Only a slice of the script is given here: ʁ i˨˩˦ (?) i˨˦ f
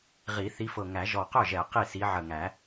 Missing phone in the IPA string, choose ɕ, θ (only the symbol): θ